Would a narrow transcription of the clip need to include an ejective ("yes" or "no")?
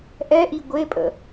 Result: yes